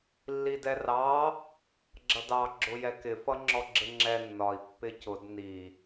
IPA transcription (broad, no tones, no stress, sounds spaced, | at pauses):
lː i d ɛ r ɑ | ɡ͡ǁ ʌ d ɑ ɡ͡ǁ ʊ j ɛ k ɪ f ʌ ŋ͡ǁ ɔ ɡ͡ǁ ɪ ŋ͡ǁ ɛ nː ɒ i̯ pː ɪ c ʊ d n i